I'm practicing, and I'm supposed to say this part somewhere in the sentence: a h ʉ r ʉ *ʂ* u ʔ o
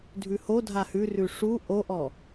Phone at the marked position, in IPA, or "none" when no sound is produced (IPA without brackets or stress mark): ʂ